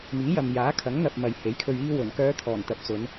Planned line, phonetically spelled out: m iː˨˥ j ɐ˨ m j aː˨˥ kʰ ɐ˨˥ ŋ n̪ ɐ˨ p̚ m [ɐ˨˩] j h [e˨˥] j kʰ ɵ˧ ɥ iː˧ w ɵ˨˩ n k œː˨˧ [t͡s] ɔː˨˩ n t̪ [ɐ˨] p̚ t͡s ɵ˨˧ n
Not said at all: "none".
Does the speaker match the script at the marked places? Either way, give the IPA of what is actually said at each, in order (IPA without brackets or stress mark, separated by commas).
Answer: ɐ˨, e˨˥, t̪ʰ, ɐ˨